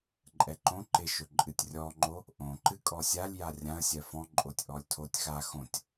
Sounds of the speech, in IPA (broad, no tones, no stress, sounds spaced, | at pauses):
ǃʼ ɛ ǃ õ ǃ ɪ ʃ ɵ ǃʼ ɨ tʲ rʲ ɔ ŋ͡ǃ o | ʔ õ ǃ ɨ kʼ ɔ sʲ a lʲ j a rʲ ã ə̯ sʲ ɜ f ɔ̃ ǃʼ o tʲ ʔ ɔ lʲ tʰ o tʲ x a x õ tʲ